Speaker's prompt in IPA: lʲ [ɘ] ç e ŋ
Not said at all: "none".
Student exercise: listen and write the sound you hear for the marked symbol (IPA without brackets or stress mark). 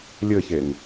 ɘ